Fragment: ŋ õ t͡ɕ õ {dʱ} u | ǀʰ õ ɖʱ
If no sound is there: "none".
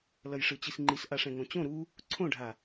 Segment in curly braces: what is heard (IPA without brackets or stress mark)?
ɾ